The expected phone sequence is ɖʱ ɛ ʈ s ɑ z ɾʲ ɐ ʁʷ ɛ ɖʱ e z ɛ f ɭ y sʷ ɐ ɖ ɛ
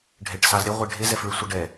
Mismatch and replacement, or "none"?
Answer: none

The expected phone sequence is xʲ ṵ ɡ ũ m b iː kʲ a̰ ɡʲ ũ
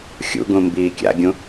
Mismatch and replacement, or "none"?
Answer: none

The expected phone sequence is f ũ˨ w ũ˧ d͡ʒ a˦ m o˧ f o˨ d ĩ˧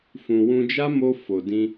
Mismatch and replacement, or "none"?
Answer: none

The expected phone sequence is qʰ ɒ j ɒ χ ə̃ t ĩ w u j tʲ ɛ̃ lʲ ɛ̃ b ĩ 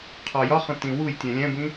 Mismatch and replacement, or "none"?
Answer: none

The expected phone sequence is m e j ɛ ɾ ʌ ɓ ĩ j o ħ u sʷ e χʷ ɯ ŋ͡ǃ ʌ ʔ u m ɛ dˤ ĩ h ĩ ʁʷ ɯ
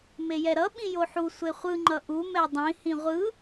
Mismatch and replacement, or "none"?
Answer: none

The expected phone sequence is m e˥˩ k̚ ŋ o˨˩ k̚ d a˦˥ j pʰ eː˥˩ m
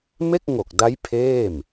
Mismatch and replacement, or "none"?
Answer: none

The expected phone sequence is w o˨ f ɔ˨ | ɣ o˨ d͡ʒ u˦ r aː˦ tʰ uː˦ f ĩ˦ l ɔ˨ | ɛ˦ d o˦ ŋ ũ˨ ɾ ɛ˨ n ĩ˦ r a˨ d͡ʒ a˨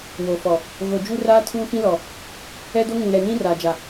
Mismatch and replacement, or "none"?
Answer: none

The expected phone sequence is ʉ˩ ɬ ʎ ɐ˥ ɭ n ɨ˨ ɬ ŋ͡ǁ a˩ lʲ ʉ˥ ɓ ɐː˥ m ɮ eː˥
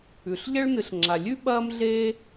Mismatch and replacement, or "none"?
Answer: none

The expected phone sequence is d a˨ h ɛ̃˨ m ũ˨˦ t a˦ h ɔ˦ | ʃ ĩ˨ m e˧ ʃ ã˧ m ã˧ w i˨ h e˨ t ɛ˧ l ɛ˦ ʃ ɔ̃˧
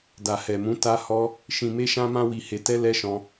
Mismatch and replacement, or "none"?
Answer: ɛ̃˨ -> ɛ˨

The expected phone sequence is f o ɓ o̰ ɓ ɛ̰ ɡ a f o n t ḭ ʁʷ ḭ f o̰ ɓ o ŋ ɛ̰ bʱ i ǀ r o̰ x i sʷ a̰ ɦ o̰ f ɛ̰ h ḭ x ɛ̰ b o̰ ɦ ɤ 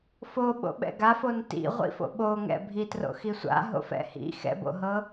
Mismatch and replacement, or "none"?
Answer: ǀ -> t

